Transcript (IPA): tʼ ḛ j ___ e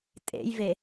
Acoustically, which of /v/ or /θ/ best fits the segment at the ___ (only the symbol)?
v